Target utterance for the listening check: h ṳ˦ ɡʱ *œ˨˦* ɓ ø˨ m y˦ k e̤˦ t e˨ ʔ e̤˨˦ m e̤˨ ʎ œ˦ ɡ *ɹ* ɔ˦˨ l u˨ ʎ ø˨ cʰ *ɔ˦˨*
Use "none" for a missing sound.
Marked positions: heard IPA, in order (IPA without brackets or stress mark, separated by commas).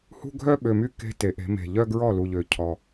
œ˦, ɹ, ɔ˨